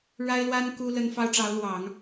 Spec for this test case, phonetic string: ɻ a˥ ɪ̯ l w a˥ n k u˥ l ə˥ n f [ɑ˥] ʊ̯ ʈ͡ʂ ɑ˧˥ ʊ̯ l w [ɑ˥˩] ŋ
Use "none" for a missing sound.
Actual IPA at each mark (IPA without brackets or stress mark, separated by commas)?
ɑ˥, ɑ˨˩˦